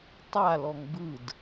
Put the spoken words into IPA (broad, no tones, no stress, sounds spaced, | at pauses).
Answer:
tˤ a l ɔ ŋ b ɯ d